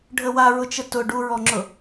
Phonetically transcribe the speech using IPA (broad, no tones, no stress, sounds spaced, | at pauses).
ɖʱ ə w a ɹ ʊ t͡ʃ ə t ʊ ɖ u ɹ ɔ ŋ͡ǁ ʊ